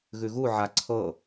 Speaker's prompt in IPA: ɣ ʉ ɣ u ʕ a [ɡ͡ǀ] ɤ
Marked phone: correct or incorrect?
incorrect